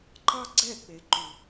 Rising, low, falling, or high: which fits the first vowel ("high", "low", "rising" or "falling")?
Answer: high